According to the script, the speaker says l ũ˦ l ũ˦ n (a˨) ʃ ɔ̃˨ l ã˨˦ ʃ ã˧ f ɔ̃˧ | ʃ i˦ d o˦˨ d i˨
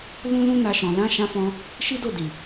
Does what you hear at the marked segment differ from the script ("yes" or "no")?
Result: yes